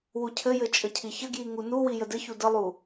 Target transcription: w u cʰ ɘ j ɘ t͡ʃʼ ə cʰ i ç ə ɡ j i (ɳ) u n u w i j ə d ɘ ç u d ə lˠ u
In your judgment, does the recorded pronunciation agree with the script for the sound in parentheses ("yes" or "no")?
no